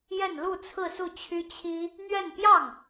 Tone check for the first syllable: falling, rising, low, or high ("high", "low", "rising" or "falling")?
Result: falling